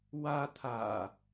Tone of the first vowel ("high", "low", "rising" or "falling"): high